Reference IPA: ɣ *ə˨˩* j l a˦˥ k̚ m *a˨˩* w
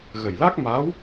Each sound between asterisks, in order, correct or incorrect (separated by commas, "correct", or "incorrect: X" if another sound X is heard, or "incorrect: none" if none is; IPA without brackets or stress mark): correct, incorrect: a˧˥